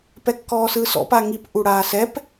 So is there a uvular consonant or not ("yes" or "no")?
no